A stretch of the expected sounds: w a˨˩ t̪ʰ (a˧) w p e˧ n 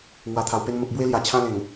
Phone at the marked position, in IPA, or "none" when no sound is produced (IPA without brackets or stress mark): a˨˩